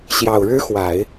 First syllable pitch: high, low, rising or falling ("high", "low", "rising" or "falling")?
low